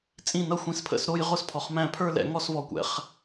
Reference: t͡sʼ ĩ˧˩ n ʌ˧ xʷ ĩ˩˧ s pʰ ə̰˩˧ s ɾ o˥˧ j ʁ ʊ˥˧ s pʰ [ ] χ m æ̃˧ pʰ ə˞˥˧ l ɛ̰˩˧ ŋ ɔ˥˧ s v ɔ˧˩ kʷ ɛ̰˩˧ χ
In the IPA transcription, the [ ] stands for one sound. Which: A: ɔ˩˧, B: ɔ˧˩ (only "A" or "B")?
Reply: A